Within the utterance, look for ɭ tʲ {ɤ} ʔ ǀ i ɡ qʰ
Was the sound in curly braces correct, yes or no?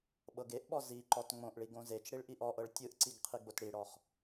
no